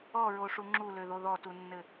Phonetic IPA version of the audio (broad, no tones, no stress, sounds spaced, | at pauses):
ɔ ɹ o ʂ u ŋ͡ǁ u l ø ð o ð ɔ t u nː ɘ